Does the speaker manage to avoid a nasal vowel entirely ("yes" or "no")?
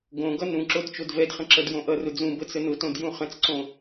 no